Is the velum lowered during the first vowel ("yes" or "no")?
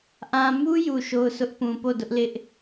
yes